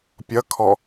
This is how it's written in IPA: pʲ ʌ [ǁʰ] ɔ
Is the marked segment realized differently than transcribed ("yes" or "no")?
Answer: yes